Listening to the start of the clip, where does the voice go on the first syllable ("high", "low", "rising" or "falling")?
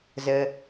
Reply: low